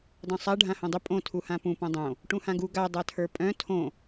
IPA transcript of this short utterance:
dˤ œ̃ sˤ a ɖʱ ã h õ dˤ ʏ pʼ õ tʰ u h ã p ũ p õ dˤ õ | ʈ ũ h ã ɡ u ɡ a dˤ a tʰ ə˞ pʼ œ̃ tʰ õ

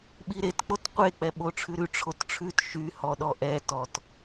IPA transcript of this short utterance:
ɓ i ɾ e t k͡p o t qʷ e k͡p ɛ ɓ o ʈ͡ʂʰ ʉ ɾ ʉ ʈ͡ʂʰ o t ʈ͡ʂʰ ʉ t ʃ y h ɔ ɗ ɔ ʔ ɛ t ɔ t

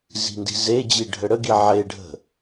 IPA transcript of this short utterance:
z i̤ n d i̤ z e d͡ʑ i ɖʱ ə ɽ ə ɡ i ʕ e ɖʱ ə̤

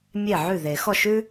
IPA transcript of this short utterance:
mʲ e˥˩ ʕ ʉ˥˩ ð e˨˩˦ x ɔ˥˩ ʃ ʉ˥

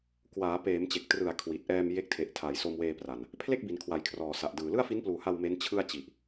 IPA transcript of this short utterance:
k w aː˩˦ p eː˩˦ m t͡ɕ e˨˩ k̚ t r ɯ˨˩ a̯ kʰ w i˨˩ t̚ ʔ ɛː˧ m j e˦˥ k̚ tʰ e˨˩ ʔ tʰ a˩˦ j s o˧ m w eː˧ p r a˨˩ n | pʰ l e˥˩ k̚ b i˩˦ n kʰ w a˨˩ j kʰ r ɔː˨˩ s a˨˩ ʔ d ɯː˨˩ l ɯ˥˩ a̯ f i˦˥ n p l uː˨˩ h a˧ w m e˦˥ n t͡ɕʰ ɯ˥˩ a̯ t͡ɕ i˨˩ ʔ

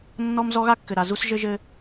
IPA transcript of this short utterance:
nː ɔ˦ m z ɔ˦ ɣ a˦ kː ɘ˨ ɾ a˨ z u˦ s ʒ ɘ˦ ʒ ɘ˦

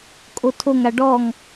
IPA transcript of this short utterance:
kʼ o tʰ o ŋ a ɖ ɔ ŋ

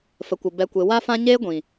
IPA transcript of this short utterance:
f ə˨ kʷ ə˨ b ɛ˨ kʷ e˨ w a˧ f ã˧ ɲ eː˦ ɡʷ ĩ˨

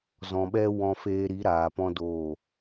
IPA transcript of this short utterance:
z ɔ̃˨ ɓ ɛ˦ w ɔ̃˧ f eː˧ ɾ i˨˦ ɾ aː˨ p ɔ̃˦ d oː˦˨

